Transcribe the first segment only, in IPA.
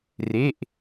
r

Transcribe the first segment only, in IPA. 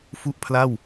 f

